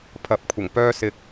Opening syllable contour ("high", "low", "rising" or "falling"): low